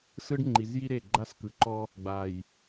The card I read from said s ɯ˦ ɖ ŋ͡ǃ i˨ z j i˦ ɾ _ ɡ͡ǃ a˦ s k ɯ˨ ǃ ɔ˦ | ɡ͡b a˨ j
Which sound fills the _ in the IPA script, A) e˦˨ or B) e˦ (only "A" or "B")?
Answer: A